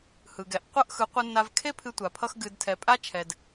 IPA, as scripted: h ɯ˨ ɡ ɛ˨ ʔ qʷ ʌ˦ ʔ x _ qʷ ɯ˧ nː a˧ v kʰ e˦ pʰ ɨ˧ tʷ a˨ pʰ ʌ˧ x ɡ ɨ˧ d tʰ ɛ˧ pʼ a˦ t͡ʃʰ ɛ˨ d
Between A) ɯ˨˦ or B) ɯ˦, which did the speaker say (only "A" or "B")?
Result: A